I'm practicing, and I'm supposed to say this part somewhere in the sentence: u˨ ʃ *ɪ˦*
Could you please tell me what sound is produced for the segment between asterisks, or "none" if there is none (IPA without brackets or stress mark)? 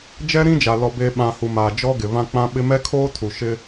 ɪ˦